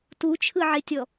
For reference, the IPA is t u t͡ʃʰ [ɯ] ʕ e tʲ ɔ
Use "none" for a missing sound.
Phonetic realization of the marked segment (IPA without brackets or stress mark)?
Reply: ɯ